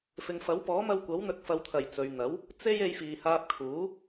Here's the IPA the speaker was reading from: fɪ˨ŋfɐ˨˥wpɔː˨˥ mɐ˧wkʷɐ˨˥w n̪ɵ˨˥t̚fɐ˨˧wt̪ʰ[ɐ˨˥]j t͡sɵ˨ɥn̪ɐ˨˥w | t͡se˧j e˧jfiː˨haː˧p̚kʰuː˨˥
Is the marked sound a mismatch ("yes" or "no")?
yes